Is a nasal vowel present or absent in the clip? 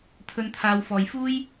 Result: absent